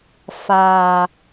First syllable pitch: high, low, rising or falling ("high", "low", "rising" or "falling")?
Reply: low